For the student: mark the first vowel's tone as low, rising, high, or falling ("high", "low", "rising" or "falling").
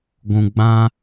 low